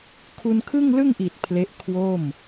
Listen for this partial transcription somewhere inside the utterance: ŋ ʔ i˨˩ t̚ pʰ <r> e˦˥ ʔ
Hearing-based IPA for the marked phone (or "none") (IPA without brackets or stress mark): l